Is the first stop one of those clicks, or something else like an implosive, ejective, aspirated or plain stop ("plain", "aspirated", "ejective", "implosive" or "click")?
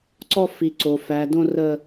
click